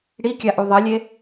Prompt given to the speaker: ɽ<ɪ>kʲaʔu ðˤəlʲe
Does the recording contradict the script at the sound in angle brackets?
yes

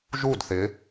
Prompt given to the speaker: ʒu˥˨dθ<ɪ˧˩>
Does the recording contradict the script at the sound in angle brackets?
yes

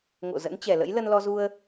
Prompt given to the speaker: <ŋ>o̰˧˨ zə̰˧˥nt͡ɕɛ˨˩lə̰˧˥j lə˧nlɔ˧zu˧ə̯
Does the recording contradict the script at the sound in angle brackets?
no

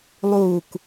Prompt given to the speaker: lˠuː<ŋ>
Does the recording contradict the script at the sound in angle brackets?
yes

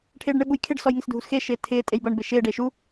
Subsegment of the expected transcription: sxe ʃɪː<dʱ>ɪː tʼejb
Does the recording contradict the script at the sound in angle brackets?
yes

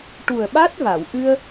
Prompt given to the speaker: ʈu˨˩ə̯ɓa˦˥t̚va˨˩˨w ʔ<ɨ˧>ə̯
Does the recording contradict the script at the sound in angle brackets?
no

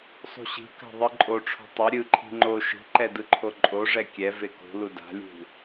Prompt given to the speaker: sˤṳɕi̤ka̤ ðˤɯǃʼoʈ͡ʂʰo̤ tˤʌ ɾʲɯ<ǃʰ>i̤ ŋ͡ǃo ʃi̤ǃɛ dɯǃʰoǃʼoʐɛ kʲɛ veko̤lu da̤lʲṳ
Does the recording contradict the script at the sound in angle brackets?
no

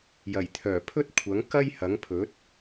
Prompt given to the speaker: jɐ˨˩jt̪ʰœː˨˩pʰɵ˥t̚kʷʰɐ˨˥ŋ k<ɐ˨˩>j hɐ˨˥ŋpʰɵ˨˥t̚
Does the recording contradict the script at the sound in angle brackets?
yes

